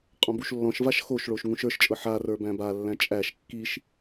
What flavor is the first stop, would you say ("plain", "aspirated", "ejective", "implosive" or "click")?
ejective